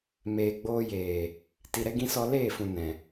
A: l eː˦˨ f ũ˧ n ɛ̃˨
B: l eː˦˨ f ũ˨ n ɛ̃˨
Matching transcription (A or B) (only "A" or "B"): B